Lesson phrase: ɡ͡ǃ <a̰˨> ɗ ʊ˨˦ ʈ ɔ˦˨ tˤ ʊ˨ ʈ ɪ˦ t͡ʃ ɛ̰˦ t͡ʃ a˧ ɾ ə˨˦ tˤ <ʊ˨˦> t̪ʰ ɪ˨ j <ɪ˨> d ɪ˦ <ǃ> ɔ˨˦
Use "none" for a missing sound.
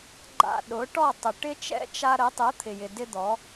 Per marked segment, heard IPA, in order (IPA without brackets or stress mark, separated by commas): a̰˧, ʊ˨˦, ɪ˨, d̪